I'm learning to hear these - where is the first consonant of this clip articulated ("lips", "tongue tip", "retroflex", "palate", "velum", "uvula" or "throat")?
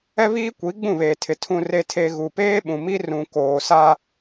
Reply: lips